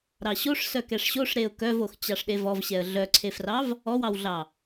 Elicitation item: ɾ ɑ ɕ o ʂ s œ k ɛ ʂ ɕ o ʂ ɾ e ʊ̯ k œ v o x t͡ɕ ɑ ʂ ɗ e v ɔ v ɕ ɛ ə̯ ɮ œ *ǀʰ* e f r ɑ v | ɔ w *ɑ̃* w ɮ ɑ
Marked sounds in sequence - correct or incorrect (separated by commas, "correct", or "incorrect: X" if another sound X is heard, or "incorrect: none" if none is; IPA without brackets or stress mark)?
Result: correct, incorrect: ɑ